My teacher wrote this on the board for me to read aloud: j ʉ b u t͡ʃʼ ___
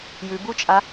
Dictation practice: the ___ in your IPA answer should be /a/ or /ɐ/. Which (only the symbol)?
a